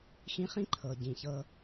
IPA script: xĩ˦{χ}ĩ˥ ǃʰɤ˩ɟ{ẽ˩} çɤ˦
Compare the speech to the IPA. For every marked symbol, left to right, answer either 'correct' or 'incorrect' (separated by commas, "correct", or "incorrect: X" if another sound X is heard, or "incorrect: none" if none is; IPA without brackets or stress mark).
correct, incorrect: ĩ˩